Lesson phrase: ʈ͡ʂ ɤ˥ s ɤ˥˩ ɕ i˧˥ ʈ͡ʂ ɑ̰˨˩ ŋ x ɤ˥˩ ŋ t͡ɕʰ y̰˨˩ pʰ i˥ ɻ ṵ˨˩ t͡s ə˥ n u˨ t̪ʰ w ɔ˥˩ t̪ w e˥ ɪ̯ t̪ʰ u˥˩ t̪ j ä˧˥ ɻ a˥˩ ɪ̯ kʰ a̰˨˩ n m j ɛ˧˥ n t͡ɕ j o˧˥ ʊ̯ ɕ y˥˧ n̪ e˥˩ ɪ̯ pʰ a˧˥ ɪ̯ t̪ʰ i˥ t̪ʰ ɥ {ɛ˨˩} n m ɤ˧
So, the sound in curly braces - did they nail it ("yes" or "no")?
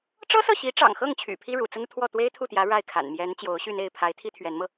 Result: no